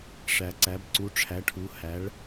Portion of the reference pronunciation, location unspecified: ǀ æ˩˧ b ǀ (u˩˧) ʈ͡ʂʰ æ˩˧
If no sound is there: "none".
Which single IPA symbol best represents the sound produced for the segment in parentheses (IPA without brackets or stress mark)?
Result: u˩˧